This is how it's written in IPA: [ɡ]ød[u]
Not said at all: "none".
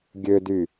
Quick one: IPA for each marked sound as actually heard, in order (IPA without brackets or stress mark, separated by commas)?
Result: ɡʲ, y